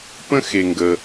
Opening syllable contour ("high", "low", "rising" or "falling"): high